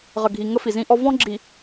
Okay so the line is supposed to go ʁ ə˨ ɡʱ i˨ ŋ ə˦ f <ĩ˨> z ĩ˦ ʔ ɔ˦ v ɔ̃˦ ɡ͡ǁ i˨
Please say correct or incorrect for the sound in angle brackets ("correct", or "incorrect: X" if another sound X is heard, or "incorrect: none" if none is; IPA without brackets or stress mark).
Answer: incorrect: i˨